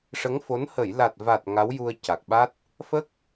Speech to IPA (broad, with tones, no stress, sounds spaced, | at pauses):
ʂ ə˧˥ ŋ f o˧˥ n h ə˨˩˨ j l a˨˩ t̚ v a˨˩ t̚ ŋ a˧˥ w j u˧ ə̯ c a˨˩ k̚ ɓ a˦˥ t̚ | f ə˦˥ k̚